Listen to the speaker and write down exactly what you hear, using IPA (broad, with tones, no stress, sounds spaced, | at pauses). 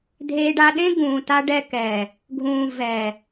dʱ eː˧ ɖ a˧ ɗ ẽ˦ ɡ ũː˨ t a˧ ɖ ɛ˧ k ɛː˨ | ɡʱ ũː˨ v ɛː˨